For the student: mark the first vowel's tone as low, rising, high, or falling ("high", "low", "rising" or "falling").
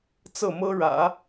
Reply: falling